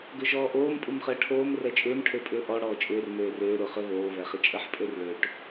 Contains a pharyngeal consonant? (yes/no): yes